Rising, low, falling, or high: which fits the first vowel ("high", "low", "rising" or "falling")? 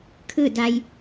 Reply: falling